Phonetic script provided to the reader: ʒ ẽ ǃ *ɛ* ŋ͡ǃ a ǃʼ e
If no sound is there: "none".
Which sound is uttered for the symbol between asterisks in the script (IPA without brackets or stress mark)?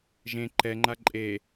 ɛ